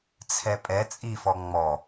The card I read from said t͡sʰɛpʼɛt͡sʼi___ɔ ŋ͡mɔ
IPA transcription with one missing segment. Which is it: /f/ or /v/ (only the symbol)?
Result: f